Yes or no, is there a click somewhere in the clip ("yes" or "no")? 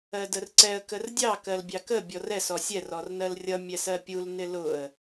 yes